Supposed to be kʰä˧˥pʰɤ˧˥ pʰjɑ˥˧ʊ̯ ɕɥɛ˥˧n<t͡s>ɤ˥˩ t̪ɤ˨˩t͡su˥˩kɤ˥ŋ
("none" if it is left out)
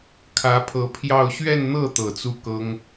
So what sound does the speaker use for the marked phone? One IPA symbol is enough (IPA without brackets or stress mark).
n̪